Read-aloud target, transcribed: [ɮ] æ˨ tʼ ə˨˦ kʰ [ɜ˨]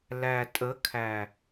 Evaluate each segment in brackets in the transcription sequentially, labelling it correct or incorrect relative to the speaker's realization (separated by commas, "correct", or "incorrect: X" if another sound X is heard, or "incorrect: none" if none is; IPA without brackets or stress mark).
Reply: incorrect: l, incorrect: æ˨